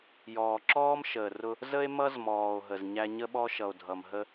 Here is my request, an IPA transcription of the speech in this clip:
j ɔː˩ ǁ ɔː˥ m ʃ əː˩ r ʊ˧ | z ə˥ e̯ m ʌ˥ z m ɔː˩ o̯ ɦ ə˩ z ɲ æ˥ ɲ ə˥ ɓ ɔ˥ ʃ ʌ˩ o̯ dʱ ʌ˩ m ɦ ə˥

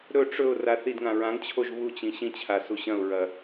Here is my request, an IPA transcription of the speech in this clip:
ɾ ɵ ʈ͡ʂ ɵ ʊ̯ r a θ i d ŋ ã ɹ ã ŋ t͡ɕʰ o ʒ β u t͡ɕ ĩ ɕ ĩ t͡ɕʰ a s u ɕ ɐ̃ ʊ̯ ɹ ɐ

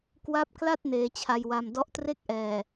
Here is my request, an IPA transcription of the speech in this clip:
k w a˦˥ p̚ k l a˥˩ t̚ n eː˧ t͡ɕʰ a˧ j w a˧ m d ɔ˦˥ ʔ t r e˥˩ k̚ ʔ ɛː˨˩

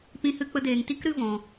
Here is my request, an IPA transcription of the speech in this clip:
p ĩ˧ h ɨ˧ k͡p ə˧ d eː˨ ŋ t i˦ k ɾ ɨ˦ v ɔ̃˧

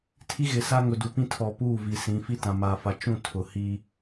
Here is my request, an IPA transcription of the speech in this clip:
tʰ i˦ ɣ ɪ˨ s a˦ ŋ ʊ˨ d u˨ p ĩ˦ tʰ ɔ˨ p uː˦˨ v i˨ s ĩ˨˦ f i˦ t ã˨ m aː˨ f a˨ t͡ʃ ũ˦˨ tʰ ʊ˨ h iː˦

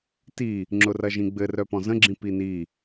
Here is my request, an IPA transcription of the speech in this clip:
t i | ŋ͡ǁ ʊ r ɐ ʒ ĩ ɡ͡b ɘ r œ p ɔ̃ z ə̃ ɡ͡ǁ ĩ p i n i

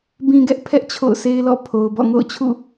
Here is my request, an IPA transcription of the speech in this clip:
b ĩ˨ ɡ ɛ˦ ʔ pʰ ɛ˦ ʔ t͡ɕʰ o̰˦˨ ʊ̯ s e˦ ɪ̯ l ɔ̰˦˨ pʰ o˨ ʊ̯ b ɔ̰˦˨ ŋ o̰˦˨ ʊ̯ t͡ɕʰ ṵ˦˨

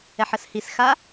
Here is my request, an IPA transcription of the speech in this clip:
ɛ ħ ə s h i s x a

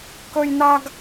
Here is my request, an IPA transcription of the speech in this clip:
k ɵ˥ j n a˥ ɡ

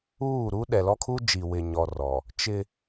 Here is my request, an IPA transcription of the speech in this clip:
uː˦˨ ɾ uː˦ ɗ ɛ˨ l ɔ˦ kʰ u˦ d͡ʒ i˨ w ɪ˨ ɲ ɔ˨ r ɔ˨ | t͡ʃ ɪ˦

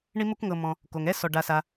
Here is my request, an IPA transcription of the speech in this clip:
ɳ i˥ m u˥ k ŋ ɤ˨ m ɔ̃˨ | k o˩ ŋ ɛ˥ s ɔ˩ ɖ a˨ s a˨

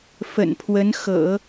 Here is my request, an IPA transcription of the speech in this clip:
f ə̰˨˩ n pʰ w ə˧˥ n x ɤ̰˨˩˦

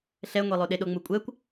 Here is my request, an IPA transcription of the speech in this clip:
ɬ ɛ ŋʷ e lˠ o ɗ e ɗ o ŋ͡m u kʷʼ ɛ kʷ

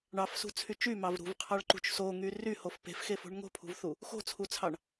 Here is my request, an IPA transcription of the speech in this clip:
ɳ ɑ f s ṳ t͡sʰ y t͡ʃ y m ɑ v ɾ ṳ v qʰ ɑ ɭ ǃ ṳ t͡ʃ s o ŋ y r y h o f p e̤ f x e f o̤ ɳ ŋ o̤ pʰ ṳ v θ u | x o̤ t͡sʰ u t͡sʰ ɑ ɳ

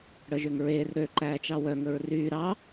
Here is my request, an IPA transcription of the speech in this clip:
ɽ œ ʒ ø ŋ ɹ eː r ɾ ø ǃ æː t͡ʃ ɑ w œ ŋ ɵ ɹ r yː ɾ ɑ

